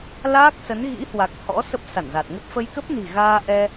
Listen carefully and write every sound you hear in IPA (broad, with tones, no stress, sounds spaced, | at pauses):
l aː˦˥ k̚ s ə˨˦ n ɣ ḭ˧˥ h w a˨˩ k̚ h ɔ̰˧˥ s ə˦˥ p̚ s a˧˩ n z a˨˩ t̚ ŋ ə˦˥ p̚ f ə˧ j k ə˦˥ p̚ n i̤˨˩ ɣ aː˧ ʔ ɛ˧